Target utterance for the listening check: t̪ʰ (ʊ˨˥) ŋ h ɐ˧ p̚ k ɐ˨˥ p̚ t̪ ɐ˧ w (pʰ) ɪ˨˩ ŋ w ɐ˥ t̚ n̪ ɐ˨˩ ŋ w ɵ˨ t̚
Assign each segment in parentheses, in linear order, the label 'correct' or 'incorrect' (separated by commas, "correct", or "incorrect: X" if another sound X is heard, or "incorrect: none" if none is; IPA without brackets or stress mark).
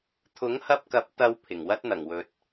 correct, correct